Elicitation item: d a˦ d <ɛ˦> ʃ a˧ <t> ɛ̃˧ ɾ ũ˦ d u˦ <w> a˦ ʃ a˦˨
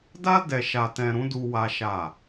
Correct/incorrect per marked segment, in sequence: incorrect: ɛ˧, correct, correct

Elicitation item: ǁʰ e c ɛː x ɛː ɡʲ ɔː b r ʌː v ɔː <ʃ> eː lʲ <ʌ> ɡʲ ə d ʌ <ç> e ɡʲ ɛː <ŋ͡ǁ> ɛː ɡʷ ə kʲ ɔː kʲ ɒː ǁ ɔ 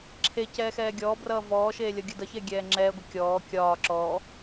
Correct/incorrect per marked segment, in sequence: correct, correct, correct, correct

